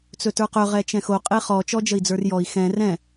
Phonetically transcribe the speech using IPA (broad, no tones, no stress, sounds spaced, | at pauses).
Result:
t͡s ɵ t ə˞ q ɵ ʁ ɛ t͡ʃ ɛ̃ x o qʼ e χ ɔ t͡ʃ ɔ d͡ʒ ə i̯ d͡z ə˞ r j ɔ i̯ x ɛ̃ r ɛ̃